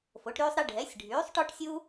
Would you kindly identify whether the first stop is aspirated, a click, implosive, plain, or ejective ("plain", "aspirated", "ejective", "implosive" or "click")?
plain